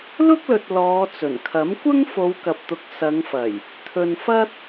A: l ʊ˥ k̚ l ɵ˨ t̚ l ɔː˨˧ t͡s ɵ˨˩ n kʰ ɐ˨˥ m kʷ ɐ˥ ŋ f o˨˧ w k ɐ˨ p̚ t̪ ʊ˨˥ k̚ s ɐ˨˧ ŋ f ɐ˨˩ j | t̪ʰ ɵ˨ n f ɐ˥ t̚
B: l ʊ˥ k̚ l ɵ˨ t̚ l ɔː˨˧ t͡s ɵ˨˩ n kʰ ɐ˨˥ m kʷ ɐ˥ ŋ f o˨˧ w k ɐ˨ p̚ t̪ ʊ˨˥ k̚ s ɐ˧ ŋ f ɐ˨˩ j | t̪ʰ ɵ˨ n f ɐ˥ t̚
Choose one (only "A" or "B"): A